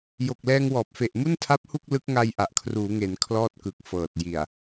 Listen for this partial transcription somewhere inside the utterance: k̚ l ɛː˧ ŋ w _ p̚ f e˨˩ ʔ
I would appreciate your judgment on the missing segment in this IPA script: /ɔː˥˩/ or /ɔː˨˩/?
ɔː˨˩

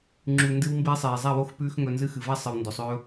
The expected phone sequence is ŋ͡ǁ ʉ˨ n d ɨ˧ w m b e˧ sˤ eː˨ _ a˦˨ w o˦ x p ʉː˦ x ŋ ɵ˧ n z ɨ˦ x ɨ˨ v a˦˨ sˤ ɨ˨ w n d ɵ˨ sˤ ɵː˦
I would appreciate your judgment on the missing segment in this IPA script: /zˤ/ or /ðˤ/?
zˤ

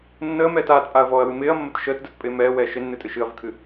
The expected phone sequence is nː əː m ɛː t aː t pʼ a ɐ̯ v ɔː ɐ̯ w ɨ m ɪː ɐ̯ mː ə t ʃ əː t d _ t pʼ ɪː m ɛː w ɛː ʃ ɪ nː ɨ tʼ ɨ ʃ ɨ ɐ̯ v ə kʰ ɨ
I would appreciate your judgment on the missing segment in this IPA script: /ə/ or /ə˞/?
ə˞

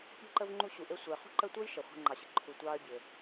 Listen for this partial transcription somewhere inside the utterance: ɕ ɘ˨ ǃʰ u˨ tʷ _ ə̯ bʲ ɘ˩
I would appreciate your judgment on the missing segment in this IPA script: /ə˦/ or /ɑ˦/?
ɑ˦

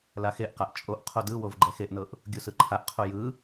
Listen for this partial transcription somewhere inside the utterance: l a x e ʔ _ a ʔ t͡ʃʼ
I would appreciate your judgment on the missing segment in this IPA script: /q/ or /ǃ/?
q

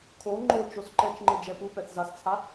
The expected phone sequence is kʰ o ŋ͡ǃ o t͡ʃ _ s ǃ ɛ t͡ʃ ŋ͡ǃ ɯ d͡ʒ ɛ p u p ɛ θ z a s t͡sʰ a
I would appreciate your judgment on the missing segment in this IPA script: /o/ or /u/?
o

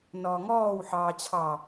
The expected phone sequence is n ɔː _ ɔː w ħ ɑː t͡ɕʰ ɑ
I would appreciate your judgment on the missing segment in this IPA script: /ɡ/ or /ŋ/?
ŋ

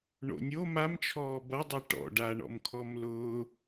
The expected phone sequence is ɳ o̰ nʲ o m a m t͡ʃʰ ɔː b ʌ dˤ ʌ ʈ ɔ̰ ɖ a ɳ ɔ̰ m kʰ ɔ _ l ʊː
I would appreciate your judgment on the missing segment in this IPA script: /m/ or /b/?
m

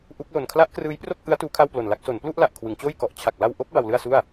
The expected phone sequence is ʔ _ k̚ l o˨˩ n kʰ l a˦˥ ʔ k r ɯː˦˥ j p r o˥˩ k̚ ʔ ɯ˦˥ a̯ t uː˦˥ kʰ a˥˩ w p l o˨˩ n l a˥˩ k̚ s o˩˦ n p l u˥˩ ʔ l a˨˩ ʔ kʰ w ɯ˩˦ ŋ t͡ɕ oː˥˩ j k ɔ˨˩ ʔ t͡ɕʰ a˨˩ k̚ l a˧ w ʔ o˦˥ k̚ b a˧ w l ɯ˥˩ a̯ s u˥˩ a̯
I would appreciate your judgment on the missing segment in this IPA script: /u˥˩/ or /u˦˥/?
u˦˥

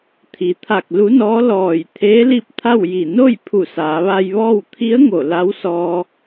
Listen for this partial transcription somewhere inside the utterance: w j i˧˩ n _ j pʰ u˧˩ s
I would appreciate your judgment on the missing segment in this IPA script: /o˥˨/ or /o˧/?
o˥˨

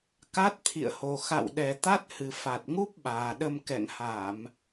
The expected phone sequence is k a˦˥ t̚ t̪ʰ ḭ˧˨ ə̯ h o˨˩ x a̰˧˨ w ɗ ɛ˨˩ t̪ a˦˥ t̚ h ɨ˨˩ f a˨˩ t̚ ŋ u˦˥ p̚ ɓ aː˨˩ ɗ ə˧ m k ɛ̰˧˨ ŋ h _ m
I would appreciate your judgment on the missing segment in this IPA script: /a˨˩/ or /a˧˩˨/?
a˧˩˨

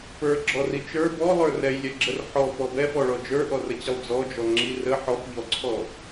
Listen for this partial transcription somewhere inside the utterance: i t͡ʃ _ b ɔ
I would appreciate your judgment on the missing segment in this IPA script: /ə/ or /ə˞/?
ə˞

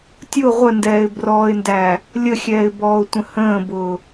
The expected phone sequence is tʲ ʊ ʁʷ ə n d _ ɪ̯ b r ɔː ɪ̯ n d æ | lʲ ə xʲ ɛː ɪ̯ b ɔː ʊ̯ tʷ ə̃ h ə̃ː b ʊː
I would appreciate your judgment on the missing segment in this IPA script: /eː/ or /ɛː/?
ɛː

